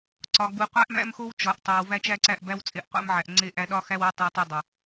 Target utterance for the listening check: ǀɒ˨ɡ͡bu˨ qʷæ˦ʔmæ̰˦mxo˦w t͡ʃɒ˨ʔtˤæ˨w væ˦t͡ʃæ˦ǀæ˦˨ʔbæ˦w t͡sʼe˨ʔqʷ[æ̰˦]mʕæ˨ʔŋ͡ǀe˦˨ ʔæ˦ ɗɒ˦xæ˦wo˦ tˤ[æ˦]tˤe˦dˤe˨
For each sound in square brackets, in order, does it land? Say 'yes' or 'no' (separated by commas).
yes, yes